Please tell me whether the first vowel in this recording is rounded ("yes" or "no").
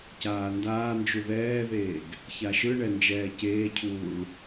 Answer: no